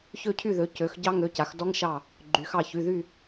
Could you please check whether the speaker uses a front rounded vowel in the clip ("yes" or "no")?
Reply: yes